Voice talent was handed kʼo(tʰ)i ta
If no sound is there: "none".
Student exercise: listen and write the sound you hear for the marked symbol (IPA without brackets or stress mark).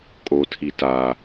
tʰ